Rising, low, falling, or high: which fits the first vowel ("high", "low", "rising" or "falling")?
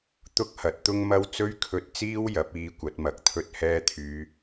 high